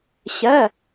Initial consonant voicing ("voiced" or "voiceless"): voiceless